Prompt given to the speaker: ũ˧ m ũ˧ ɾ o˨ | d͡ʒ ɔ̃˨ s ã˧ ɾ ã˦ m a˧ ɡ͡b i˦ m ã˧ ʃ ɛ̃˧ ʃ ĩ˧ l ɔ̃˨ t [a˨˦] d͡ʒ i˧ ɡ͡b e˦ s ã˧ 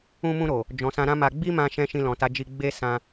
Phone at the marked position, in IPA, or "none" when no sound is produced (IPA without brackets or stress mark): a˨˦